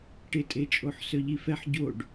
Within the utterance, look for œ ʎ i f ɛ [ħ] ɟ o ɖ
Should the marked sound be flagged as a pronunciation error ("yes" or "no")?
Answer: no